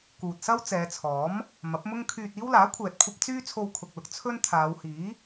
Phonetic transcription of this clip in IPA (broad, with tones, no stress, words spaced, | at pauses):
kuː˨t̚sɐ˥w t͡sɛː˨˧t͡sʰɔː˨˥m | mɐ˨˥p̚mʊ˥ŋ kʰyː˧t̚iː˥w laː˨˥kʷʰɛː˨t̚kʷʰɐ˧p̚ t͡syː˥ t͡sʰo˧wkʰʊ˨k̚lʊ˨k̚ t͡sʰɵ˥n t̪ʰaː˨˧whiː˨˥